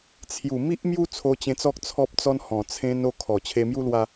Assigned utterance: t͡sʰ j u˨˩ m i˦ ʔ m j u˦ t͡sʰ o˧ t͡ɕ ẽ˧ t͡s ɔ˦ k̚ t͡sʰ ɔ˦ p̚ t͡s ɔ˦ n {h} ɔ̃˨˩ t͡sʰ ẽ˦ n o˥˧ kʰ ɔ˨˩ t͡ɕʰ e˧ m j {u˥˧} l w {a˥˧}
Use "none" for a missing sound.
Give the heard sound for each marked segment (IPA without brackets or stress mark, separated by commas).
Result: h, u˦, a˧